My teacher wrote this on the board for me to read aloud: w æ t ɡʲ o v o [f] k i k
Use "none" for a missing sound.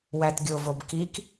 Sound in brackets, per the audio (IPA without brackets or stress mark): b